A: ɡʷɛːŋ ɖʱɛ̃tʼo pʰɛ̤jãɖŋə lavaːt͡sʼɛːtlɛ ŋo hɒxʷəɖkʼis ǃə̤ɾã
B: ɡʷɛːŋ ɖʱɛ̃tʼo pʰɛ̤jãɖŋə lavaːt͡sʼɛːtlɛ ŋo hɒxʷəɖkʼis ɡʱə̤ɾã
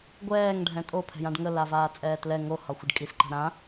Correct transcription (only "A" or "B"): A